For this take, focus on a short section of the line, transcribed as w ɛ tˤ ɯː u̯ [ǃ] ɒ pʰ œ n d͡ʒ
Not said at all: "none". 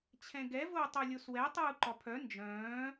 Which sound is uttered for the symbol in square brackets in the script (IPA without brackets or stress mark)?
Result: ǃ